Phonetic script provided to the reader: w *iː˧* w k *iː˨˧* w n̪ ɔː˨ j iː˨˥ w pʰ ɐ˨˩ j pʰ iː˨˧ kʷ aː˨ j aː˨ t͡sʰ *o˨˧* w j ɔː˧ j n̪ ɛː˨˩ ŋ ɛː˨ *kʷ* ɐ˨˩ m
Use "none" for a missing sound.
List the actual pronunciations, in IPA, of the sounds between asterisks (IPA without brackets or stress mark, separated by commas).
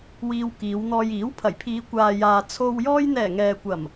iː˧, iː˨˧, o˨, kʷ